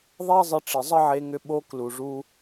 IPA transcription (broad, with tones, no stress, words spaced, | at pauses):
ðˤe˦zˤɪ˧ ʈ͡ʂɪ˨zˤə˦ʕe˧ŋʏ˧ ɓo˦ klu˨ʐu˧